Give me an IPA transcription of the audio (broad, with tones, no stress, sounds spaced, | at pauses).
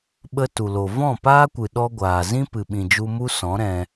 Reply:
ɓ ə˦ t u˨ l o˨ v ɔ̃˦˨ p aː˦ kʷ ɨ˨ ɗ ɔ˦ ɡʷ aː˨ z ĩ˦ p ɨ˨ ɓ ĩ˨ d͡ʒ u˧ m u˦ s ɔ̃˨˦ ɾ ɛ̃˧